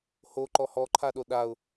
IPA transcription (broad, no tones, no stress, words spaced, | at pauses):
hoǃɔ hɔǃʰaɗo ɗaʊ̯